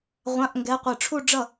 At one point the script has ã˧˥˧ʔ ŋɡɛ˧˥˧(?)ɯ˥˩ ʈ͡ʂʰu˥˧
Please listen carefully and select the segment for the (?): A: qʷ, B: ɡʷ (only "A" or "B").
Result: A